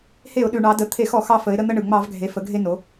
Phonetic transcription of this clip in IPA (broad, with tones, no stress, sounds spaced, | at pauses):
h e˧˩˧ ʊ̯ ɗ ʉ˩ ɳ ɑ˩˧ d ə˩˧˩ t̪ʰ e˧˩˧ x ɔ˧˩˧ x ɑ˧ f ə˩˧ ɪ̯ ɾ ə˧ n̪ ə˧ ɳ ɯ˩ ŋ͡m ɑ˧˩˧ v ɡʱ e˩˧ f ə˩˧ ɡʱ e˧ n o˩˧